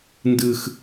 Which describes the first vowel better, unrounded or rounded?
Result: unrounded